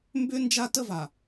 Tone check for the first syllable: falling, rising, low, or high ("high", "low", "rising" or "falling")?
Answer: high